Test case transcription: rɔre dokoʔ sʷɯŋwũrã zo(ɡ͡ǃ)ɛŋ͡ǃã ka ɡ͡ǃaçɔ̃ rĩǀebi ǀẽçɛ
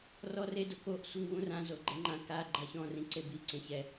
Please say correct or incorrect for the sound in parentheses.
correct